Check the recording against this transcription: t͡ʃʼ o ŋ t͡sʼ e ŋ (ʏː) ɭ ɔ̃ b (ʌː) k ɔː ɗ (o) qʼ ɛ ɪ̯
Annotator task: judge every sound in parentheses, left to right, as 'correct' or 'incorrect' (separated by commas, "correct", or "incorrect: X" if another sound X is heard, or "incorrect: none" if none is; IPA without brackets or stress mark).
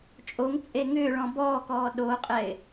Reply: correct, incorrect: ɔː, correct